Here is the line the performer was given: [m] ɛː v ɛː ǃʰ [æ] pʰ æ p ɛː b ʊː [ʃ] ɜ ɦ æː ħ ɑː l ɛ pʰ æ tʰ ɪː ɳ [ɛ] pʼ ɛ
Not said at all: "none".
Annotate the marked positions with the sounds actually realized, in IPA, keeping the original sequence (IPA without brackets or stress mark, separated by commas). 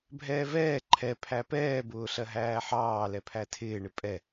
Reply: bʱ, ɛ, ɬ, ɪ